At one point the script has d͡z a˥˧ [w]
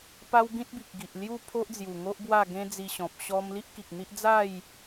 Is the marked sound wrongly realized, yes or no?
yes